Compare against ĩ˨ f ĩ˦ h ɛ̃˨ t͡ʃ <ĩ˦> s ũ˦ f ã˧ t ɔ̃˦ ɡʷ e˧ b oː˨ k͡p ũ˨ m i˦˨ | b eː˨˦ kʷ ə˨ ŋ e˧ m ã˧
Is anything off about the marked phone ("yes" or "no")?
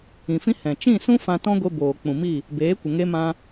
yes